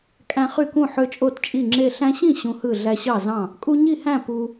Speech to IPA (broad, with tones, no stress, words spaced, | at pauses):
kʼæ̃˦χy˥˨kũ˥˨ ħø˦t͡ʃʼo˥˨tt͡ʃʼi˥˨ŋ͡ǁe˥˨ ɬæ̃˦ɕĩ˥˨ ɕũ˦hɯ˥˨ ɮæ˦ɕɑ˥˨zɑ̃˥˨ | kʼu˦ɲi˥˨hæ̃˥˨ pu˦